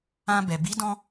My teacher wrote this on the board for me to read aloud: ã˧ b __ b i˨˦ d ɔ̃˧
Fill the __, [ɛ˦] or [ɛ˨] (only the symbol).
ɛ˨